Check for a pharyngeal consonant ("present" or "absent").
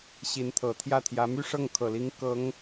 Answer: absent